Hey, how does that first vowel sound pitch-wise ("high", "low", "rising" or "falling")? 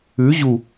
rising